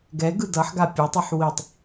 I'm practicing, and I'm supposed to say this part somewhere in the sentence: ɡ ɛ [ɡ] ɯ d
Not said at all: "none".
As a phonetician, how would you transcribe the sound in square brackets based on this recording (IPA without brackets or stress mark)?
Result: ɡ